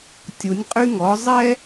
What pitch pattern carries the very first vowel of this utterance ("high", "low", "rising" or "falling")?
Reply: rising